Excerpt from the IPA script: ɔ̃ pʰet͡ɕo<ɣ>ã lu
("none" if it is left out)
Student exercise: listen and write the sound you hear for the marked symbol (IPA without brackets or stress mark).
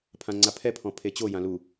j